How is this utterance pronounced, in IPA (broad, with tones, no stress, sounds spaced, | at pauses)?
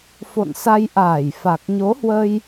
f o̰˧˨ n s a˧ j ʔ aː˧˩ j f a˨˩ k̚ ɲ o˨˦ h w ə˧ j